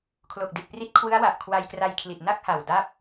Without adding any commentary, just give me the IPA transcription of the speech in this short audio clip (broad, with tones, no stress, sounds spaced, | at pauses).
kʰ l o˨˩ k̚ d i˨˩ t̚ p r i˦˥ t̚ kʰ w ɯ˦˥ a̯ w a˨˩ ʔ kʰ w a˧ j k r a˧ j kʰ l i˨˩ t̚ n a˥˩ k̚ h a˨˩ w d a˥˩ p̚